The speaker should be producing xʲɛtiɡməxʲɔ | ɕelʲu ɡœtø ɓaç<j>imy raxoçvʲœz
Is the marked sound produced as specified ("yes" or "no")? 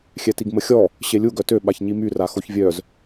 no